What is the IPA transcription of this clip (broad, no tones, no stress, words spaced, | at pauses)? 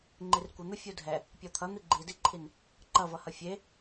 ŋ͡ǃirkʷən̪u fʲudʱɛ | pʲɔt̪ʰʌn̪i ɡ͡ǃidiǃʰin | ǃʌvʌhʌ fʲe